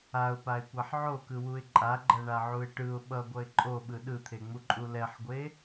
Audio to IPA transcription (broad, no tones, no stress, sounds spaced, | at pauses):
a ʊ̯ p a ɪ̯ kʷ a ħ ʕ o k ɯ w u ɪ̯ ǃʼ a ɡ͡ǃ ʌ ɳ a ʕ u ɪ̯ ʈ ɯ ʊ̯ ɓ ʌ ɡʷ ʌ ɪ̯ ǃʼ o ɓ ɯ ɗ ɯ t̪ʰ e ŋ͡m u ǃʼ u l ɛ ħ ɡʷ e